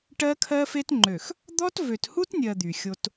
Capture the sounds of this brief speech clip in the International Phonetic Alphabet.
ʈ ɜ˦ kʰ ɜ˦ f e˦ t ŋ͡ǃ ø˨ x | d̪ ɔ˦ t v ø˨ t h u˦ t nʲ ɜ˨ d̪ y˨ xʲ o˦ t

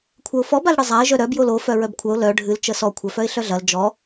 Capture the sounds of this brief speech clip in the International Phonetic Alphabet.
kʷʰ ɐ ʊ̯ f ɔ b a l ɽ ɨ zˤ a ɪ̯ ʒ œ ɾ œ b j o l o f œ ɹ œ b kʷʰ œ ʊ̯ l œ ɖʱ ɨ l t͡ʃ ə s ɔ kʷʰ œ f œ ɪ̯ ɬ œ ɮ ɐ l d͡ʒ ɔ

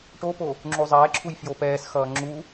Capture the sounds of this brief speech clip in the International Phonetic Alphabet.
ʈ o p o | ŋ͡ǁ u zˤ ɛː ǁʰ u j f j o p ɛː s x ʌː ŋ͡ǁ u

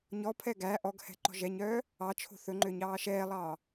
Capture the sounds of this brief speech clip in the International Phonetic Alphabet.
ɲ ɔ pʰ ɛ ɡ æ ʔ ɔ ɡ h ɛ̤ ǃ ɔ̤ ʒ ɛ ɲ œː | ɑ t͡ʃʰ o̤ θ ɵ ŋ͡ǃ ø ɲ ɑː ʃ ɛː lˠ ɑː

